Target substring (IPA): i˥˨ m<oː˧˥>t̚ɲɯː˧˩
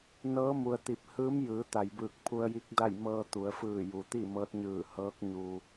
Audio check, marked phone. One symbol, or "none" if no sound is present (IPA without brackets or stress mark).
ɤː˧˥